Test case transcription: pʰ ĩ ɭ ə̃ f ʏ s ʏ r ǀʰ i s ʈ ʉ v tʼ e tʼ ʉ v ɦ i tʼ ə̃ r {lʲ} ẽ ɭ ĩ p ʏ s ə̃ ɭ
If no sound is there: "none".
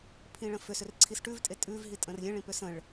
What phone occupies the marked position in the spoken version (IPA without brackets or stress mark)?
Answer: lʲ